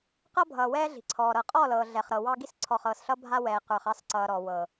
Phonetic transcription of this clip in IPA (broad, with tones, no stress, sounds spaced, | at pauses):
q ʌ˦ bʱ ʌː˨ w ɛː˦ ɮ i̤˨ ǀʰ ɔː˨ ɾ ɤ˨ qʼ ɔ˦˨ l ɤː˨ ɮ ɛ˨ χ ɾ ɤ˨ w ɑ˦ ɡ i˦ s ǀʰ ɔ˨ χ ɤː˨ s ɬ ʌ˦ bʱ a˦ w ɛː˨ q ə˞˨ χ ɑ˦ s ǀ ʌː˨ ɾ ɔ˨ w ɤ˨